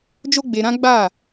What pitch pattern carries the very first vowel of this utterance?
high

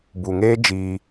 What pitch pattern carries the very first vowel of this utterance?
low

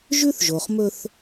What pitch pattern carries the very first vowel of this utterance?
high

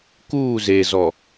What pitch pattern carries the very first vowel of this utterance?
falling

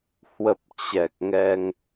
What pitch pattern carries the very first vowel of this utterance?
low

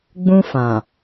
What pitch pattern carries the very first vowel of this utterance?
high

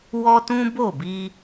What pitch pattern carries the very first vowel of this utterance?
high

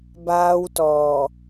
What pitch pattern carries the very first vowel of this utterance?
high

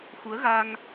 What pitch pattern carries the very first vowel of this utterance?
rising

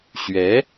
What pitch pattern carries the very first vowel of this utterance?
rising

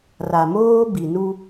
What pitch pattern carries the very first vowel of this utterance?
low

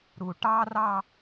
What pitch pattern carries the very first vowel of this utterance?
low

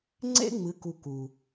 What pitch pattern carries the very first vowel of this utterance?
high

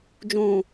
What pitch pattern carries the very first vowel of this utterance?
low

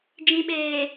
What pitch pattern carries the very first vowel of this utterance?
low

